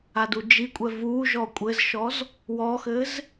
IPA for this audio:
a d u d͡ʒ i kʷʼ ɛ v u ʒ ɔ kʷʼ ɘ z ʃ ɔ z | w ɔ x ɘ z

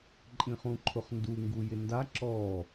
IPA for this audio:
ǃʼ ĩ χ ũ ǃʰ ʊ χ n d u ŋ ɡ u j ɪ n d a ǁ ɔ

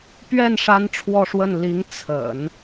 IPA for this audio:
p ɥ ɛ˥˩ n ʂ a˥ n ʈ͡ʂʰ w ɔ˥˧ ʂ w ə˥˩ n l i˧˥ ŋ t͡sʰ ə̰˨˩˦ n

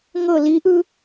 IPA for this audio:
ŋ ɤ l i ʔ ɯ

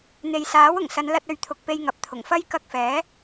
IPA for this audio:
n̪ e˨ j s aː˨˥ w ʊ˨˩ ŋ s ɐ˨˧ n l ɐ˧ t̚ ɵ˨˧ ɥ t̪ʰ ʊ˨ k̚ p e˧ j ŋ ɐ˨ p̚ t̪ʰ ʊ˨˩ ŋ f ɐ˥ j k ɐ˧ k̚ f ɛː˨˥

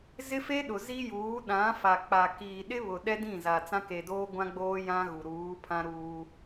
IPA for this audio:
z ɪ˦ f e˦ ɗ ʊ˨ z i˦ j uː˨˦ ɗ ã˨˦ f a˨ k͡p a˨ k iː˨ ɗ ɪ˦ β ʊ˨ ɗ ɛ˦ d ĩ˦˨ z a˨ t͡s ã˦ k e˨ d oː˦ ɡʷ ã˦ ɡ͡b oː˦ j ã˦ ɣ u˨ ɾ uː˨˦ pʰ ã˦ ɾ uː˦

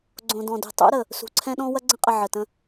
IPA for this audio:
ɡ͡ǀ õ˨ d ɔ̃˨ d ṳ˨ tˤ ṵ˦ ɾ ə˨ | s ṳ˨ ǀʰ ɛ̃˦ ɗ ɔ̃˦ w ɐ˦ ɡ͡ǀ ə̃˦ qʼ ə˨ ʕ ə˨ t ə̃˦

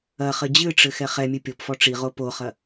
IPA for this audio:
ɐ χ ɘ d͡ʑ ɨ ʈ͡ʂ ɘ x ɛ χ ɛ mʲ ɨ pʲ o p f ɔ ʈ͡ʂ i ʁ o p o χ ɐ

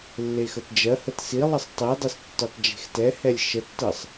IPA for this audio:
lː e x ə t d͡ʒ ɜ h ə t s i lˠ ə sˤ tˤ i dˤ i s tː ø tˤ d͡ʒ e̤ x t ɛ h ɛ lʲ ʃ ə tː ɜ sˤ

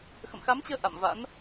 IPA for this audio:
x ə̰˧˨ m x a˨˦ m t͡ɕ əː˧ ʔ a̰˧˨ m v a̰˧˥ n

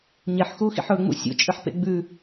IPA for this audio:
ɲ e ħ x uː x ḭ ħ ɵ ŋ͡m ṵ sʲ ṵ t͡ʃʼ ɨ ħ p ḛ ɡ͡b ʉ

